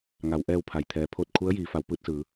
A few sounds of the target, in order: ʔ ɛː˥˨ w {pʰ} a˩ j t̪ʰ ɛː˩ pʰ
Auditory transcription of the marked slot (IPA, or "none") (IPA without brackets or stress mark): pʰ